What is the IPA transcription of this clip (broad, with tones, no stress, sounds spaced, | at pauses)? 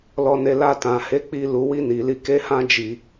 l ɔ˧ n e˧ l a˧ t ã˨ h e˨˦ k͡p i˦ l u˧ w i˦ n i˧ l i˦ k e˦ h ã˦ d͡ʒ i˧